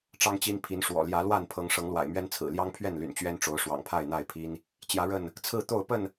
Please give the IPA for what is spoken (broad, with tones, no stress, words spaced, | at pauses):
ʈ͡ʂɑ˦ŋt͡ɕi˦n pʰi˨˦nʂwɔ̰˨˩ljä˨˦ lwa˥˨npʰɤ˨˦ŋ ʂɤ˨˦ŋlwa̰˨˩ɪ̯ mɥɛ˦nt͡sʰɹ̩˨˩ ljɑ˦ŋpʰɥɛ˥˨nly̰˨˩n t͡ɕɥɛ˦nʈ͡ʂo˨˦ʊ̯ ʂwɑ̰˨˩ŋpʰa˥˨ɪ̯n̪a˥˨ɪ̯pʰi˦n | t͡ɕjä˨˦ɻə˥˨n | t͡sʰɹ̩˥˨t̪o˥˨ʊ̯ pə˥˨n